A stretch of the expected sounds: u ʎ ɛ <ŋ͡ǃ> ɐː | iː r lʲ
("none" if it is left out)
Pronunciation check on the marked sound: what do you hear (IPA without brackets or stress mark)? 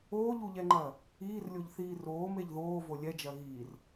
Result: ŋ͡ǃ